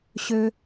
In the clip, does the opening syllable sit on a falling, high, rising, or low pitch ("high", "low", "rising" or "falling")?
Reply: high